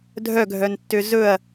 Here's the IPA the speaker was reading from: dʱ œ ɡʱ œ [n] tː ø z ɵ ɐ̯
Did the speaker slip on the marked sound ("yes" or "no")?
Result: no